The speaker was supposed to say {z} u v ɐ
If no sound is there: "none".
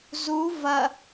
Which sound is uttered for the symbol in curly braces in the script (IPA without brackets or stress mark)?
z